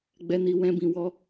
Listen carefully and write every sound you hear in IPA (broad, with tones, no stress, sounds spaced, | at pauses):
ɡ͡b ɛ˧ n i˧ w ɛ̃˦ b ĩ˧ w ɔ˦